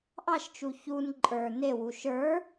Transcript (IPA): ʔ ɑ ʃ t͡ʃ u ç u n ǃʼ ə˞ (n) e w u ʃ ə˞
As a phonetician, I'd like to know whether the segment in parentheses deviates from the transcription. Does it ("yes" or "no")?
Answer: no